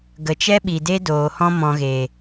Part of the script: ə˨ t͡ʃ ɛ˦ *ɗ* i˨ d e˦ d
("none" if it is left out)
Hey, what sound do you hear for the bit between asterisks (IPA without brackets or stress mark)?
ɓ